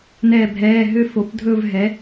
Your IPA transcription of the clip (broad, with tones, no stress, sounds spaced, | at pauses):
n ɛ˥˧ bʱ ɛː˧˥˧ ɦ ø˥˧ f o˨˥ p dʱ ɵ˥˧ v ɦ ɛ˨˥